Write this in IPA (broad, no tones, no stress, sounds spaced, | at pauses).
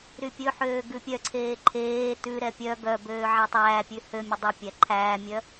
ɾ y pʲ ɵ ħ øː ɡ ʉ pʲ œ ǀʰ eː ǃʰ eː t ʉ ɾ ɛ pʲ œ ɡ œ b øː ʕ æ tˤ æː pʲ ʉ h ø mʲ ɵ dˤ e pʲ æ ǃʰ æː mʲ œ